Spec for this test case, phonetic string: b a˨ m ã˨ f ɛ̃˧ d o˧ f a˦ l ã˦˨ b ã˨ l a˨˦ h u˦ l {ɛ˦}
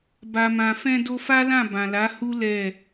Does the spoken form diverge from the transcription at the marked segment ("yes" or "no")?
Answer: yes